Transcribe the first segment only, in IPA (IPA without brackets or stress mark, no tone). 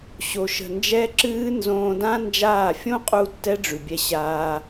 ɕ